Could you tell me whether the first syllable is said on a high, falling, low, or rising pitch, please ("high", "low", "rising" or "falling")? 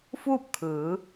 falling